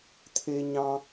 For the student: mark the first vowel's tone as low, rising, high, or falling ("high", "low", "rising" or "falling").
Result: low